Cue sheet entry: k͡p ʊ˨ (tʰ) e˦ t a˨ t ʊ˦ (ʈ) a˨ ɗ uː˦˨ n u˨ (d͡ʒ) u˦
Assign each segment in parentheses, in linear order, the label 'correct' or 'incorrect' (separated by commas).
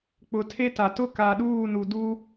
correct, incorrect, incorrect